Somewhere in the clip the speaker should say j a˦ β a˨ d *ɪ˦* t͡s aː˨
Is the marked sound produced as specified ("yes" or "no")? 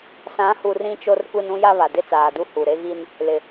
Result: yes